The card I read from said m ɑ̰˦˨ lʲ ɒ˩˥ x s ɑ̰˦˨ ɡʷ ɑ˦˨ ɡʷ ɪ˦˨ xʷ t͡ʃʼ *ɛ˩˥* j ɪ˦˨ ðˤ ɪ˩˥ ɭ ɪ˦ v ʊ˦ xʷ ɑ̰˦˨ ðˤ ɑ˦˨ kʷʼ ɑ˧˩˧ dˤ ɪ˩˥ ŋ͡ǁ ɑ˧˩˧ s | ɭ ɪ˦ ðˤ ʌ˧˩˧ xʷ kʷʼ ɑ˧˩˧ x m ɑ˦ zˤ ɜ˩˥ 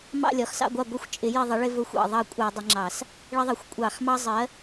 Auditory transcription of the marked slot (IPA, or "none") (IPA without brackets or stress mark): ɪ˩˥